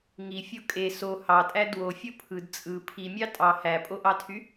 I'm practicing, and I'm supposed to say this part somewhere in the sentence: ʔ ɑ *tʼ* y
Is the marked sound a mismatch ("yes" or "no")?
yes